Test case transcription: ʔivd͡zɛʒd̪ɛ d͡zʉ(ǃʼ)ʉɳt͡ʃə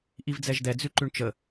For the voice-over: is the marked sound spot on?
no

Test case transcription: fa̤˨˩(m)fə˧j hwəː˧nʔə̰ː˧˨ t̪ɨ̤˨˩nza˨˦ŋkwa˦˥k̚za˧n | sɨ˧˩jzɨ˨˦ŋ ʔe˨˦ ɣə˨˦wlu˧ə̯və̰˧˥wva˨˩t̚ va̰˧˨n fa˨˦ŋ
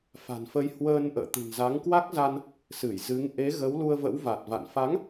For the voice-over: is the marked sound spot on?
no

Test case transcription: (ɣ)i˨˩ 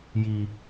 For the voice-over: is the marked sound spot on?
no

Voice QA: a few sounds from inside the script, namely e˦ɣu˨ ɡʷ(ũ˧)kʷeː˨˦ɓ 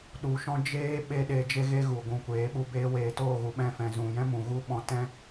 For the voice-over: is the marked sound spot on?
no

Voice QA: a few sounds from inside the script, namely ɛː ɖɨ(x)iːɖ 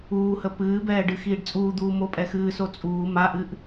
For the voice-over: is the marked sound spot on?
yes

